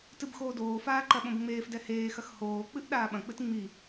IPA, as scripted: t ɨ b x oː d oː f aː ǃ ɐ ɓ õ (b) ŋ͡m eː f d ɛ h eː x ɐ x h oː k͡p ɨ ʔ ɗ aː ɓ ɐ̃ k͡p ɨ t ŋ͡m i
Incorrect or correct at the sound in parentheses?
correct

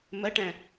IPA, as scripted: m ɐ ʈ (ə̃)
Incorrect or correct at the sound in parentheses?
incorrect: æ̃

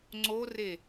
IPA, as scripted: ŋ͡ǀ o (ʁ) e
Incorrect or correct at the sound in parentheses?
incorrect: r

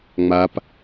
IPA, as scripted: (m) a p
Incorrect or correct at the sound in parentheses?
incorrect: ŋ͡m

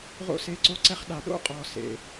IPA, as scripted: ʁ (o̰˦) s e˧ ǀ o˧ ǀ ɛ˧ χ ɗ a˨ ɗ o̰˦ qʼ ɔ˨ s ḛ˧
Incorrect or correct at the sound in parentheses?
incorrect: o̰˧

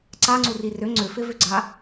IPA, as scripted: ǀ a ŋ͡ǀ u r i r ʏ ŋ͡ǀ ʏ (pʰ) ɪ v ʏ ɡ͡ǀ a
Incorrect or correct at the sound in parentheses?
incorrect: f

